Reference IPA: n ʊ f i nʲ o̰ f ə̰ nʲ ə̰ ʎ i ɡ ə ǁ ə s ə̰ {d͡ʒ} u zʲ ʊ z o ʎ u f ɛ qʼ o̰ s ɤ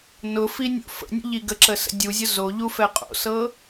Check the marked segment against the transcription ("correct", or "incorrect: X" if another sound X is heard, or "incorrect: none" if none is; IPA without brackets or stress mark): incorrect: dʲ